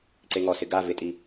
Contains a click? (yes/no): yes